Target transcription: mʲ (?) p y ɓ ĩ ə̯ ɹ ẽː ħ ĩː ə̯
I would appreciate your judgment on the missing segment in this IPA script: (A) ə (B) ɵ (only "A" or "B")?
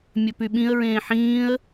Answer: B